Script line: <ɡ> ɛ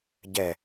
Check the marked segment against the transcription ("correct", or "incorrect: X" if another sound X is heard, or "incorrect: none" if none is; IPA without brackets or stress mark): incorrect: ɟ